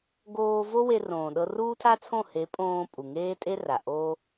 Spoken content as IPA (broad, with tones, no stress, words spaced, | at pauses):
ɡoː˧ vo˦we˧rõː˨ ɗɤ˧ruː˦tʰa˦t͡sʰõ˦˨ he˨˦pʼõː˧ pʼu˨ŋeː˦tʼe˦ra˨ ʔo˦